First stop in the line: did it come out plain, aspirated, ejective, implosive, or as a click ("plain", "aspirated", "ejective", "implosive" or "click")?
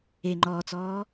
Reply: click